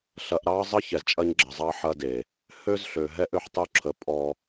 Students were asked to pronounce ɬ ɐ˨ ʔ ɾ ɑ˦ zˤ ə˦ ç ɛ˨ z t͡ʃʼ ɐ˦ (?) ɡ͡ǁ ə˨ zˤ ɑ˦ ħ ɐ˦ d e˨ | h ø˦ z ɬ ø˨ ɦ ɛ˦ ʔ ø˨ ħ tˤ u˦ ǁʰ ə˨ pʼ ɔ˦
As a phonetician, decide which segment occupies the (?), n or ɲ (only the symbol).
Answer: ɲ